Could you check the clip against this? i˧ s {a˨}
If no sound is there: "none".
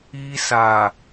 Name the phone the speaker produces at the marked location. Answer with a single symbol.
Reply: a˨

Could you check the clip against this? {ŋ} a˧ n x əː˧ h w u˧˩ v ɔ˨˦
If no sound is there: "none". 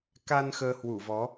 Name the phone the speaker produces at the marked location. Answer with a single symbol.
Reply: k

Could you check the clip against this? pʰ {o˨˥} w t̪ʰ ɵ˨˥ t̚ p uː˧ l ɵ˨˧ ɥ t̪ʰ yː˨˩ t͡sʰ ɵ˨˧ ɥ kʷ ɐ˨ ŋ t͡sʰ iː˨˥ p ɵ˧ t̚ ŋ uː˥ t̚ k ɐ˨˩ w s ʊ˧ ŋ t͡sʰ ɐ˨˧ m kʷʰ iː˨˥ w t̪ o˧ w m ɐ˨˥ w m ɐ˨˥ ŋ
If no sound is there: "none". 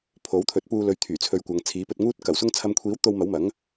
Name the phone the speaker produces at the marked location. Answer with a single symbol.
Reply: o˨˥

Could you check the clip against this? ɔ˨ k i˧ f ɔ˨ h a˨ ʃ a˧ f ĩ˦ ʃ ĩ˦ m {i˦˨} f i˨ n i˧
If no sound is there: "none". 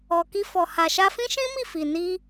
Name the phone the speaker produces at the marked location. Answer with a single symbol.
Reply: i˦˨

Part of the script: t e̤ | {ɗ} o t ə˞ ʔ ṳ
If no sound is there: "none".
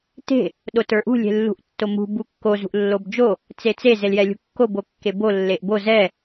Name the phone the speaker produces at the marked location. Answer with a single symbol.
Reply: ɗ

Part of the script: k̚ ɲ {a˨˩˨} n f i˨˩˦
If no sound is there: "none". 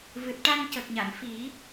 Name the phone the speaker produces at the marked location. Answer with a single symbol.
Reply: a˨˩˨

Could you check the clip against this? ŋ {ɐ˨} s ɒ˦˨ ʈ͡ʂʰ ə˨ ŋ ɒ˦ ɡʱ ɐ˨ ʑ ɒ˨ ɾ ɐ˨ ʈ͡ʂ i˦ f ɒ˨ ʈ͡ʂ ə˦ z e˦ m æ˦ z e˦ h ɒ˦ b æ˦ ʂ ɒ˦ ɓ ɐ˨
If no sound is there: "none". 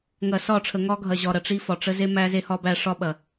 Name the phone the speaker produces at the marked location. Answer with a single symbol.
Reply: ɐ˨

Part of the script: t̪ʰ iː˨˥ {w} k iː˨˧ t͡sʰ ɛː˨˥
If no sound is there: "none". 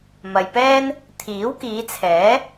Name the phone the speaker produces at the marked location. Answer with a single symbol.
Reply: w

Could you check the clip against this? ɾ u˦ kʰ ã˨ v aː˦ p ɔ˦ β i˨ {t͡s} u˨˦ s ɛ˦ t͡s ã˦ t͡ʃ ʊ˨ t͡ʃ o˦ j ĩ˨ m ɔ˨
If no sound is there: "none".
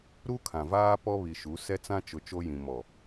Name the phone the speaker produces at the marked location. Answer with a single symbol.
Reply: ʃ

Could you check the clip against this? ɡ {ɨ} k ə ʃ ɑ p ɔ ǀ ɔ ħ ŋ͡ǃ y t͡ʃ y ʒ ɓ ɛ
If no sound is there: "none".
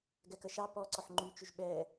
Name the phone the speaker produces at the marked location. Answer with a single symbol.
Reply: ɛ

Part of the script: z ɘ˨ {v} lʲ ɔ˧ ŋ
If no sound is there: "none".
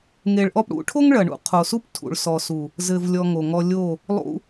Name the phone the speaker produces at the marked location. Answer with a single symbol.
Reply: v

